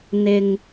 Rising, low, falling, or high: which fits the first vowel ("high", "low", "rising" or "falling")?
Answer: low